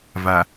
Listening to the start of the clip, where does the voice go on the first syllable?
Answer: low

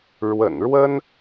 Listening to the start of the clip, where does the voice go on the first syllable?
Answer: low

